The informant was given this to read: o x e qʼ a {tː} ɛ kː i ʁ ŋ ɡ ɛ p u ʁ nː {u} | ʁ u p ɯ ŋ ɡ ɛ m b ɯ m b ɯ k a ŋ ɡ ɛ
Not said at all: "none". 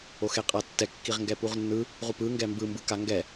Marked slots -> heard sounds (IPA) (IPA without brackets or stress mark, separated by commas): tː, ɯ